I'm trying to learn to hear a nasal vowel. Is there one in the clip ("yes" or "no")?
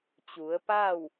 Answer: no